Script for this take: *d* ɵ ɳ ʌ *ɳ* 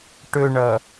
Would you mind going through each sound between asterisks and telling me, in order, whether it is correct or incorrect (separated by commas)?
incorrect, incorrect